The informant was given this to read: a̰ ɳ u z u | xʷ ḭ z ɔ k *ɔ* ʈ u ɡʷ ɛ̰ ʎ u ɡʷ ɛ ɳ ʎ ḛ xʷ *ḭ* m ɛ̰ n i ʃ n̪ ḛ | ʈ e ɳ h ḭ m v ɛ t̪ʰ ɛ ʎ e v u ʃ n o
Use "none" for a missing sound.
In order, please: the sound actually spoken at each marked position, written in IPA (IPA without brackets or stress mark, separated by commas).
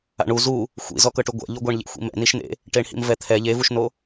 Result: ɤ, ḭ